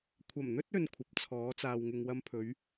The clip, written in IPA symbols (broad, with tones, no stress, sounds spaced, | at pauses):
kʷʰ ɐ˨˩ m n̪ ɵ˥ t̚ ɵ˧ n kʷʰ ɐ˨ p̚ t͡sʰ ɔː˨˥ t͡s aː˨ w ŋ ɪ˧ ŋ w ɐ˥ m pʰ ɵ˨˥ ɥ